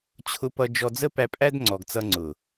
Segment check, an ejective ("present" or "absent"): present